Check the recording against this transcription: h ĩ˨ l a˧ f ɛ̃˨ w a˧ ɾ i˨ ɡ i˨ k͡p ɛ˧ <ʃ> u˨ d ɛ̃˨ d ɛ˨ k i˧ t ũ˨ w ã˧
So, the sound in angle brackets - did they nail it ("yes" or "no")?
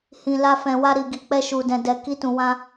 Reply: yes